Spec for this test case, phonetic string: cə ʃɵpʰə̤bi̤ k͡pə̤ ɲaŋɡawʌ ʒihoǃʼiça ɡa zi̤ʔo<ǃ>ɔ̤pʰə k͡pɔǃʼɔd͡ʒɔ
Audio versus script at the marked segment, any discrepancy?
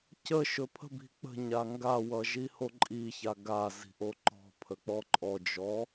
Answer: no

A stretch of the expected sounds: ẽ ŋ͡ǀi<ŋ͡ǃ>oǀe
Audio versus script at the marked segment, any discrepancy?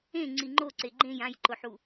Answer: no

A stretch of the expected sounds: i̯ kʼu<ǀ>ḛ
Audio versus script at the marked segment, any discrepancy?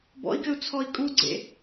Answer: yes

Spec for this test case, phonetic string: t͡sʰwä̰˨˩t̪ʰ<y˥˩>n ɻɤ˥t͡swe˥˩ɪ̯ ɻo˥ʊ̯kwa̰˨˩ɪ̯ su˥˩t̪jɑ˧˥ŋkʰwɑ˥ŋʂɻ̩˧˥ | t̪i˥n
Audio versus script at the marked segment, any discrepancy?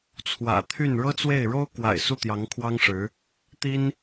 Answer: no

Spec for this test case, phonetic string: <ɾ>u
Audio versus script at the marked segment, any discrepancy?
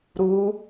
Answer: no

